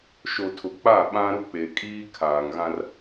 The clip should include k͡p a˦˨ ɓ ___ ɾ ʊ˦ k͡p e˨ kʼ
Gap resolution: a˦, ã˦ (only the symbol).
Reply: ã˦